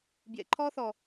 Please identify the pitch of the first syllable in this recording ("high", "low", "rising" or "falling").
low